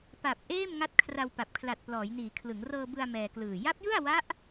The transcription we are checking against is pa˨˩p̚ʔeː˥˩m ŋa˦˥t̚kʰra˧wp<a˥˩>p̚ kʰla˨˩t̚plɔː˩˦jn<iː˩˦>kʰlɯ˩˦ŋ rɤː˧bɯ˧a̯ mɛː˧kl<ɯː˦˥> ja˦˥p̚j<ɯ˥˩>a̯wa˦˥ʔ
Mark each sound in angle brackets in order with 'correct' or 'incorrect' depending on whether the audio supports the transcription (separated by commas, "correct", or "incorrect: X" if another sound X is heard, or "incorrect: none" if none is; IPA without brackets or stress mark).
incorrect: a˨˩, correct, incorrect: ɯː˨˩, correct